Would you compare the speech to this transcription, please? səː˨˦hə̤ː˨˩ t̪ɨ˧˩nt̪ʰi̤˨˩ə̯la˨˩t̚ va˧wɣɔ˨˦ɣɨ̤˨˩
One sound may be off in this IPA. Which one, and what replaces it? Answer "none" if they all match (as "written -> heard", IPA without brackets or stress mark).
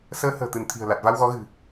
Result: none